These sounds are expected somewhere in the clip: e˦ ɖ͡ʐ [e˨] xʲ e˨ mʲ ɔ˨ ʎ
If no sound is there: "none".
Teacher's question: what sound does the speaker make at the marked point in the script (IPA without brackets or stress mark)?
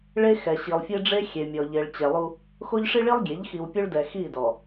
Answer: e˦